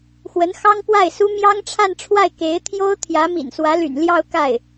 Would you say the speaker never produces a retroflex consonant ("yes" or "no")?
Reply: no